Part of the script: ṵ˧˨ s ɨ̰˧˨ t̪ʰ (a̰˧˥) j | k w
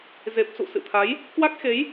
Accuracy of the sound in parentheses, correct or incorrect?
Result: incorrect